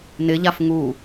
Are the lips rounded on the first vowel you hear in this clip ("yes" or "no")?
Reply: no